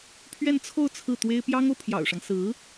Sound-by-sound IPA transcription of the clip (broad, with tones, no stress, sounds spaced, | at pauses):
pʰ ɥ ɛ˥˧ n t͡sʰ o˥˧ ʊ̯ t͡sʰ ɹ̩˥˩ t̪ w e˥ ɪ̯ p j ɑ˥ ŋ o˨ ʊ̯ pʰ j ɑ̰˨˩ ʊ̯ ʂ ɑ˦ ŋ s ɹ̩˧˥